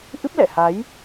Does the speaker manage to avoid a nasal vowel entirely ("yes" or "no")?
yes